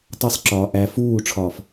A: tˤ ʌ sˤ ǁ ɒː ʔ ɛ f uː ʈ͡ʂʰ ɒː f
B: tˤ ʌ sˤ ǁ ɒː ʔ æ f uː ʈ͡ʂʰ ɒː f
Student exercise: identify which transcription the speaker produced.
B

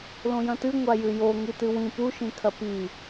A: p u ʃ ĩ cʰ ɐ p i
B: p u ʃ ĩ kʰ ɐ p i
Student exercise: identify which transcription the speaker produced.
B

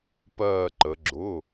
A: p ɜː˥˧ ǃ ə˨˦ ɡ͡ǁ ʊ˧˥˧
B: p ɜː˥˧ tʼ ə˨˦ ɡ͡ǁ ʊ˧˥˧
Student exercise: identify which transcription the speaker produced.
A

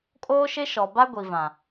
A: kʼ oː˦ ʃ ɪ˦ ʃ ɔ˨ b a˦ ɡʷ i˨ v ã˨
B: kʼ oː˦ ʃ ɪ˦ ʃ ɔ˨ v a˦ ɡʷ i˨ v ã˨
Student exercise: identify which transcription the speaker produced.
A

